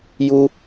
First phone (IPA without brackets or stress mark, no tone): j